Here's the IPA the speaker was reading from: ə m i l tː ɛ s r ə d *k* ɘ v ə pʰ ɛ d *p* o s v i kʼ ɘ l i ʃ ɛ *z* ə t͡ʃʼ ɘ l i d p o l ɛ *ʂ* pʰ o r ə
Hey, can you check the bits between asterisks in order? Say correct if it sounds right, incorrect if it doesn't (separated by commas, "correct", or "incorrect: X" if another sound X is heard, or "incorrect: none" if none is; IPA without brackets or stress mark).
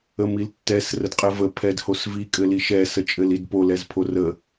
incorrect: qʼ, incorrect: h, incorrect: s, incorrect: z